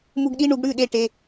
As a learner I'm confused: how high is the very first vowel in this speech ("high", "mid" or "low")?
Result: high